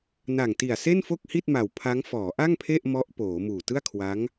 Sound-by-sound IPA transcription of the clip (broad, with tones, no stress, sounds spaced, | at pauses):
n a˨˩ ŋ t i˨˩ a̯ s e˥˩ n f o˥˩ k̚ h i˥˩ t̚ m a˨˩ w pʰ a˦˥ ŋ f ɔː˩˦ ʔ a˥˩ ŋ pʰ e˥˩ ʔ m ɔ˦˥ ʔ p oː˩˦ m uː˨˩ t ɯ˥˩ a̯ kʰ w a˦˥ ŋ